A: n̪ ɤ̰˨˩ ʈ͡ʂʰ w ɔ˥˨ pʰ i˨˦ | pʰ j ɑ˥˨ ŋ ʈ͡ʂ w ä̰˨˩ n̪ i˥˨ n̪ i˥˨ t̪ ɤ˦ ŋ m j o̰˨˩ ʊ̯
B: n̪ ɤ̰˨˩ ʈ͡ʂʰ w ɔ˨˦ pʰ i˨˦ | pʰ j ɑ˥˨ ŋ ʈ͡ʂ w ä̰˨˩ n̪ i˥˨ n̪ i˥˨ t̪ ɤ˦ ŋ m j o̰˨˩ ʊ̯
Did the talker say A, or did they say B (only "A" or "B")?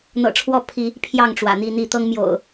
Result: A